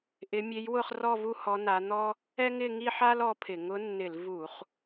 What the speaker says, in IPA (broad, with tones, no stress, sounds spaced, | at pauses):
ʔ ɪ˧˥ mʲ e˧˥ j w ʊ˥˧ χ r ɔ˥˧ v u˥˧ h ɔ˧˥ n a˧˥ n̪ ɔ˥ | ɛ˥ ŋ ɪ˥˧ ŋ i˥˧ ħ a˥ l ɔ˧˥ pʰ ɪ˧˩˧ ŋ ʊ˧˥ nː ɪ˧˩˧ l v u˧˩˧ χ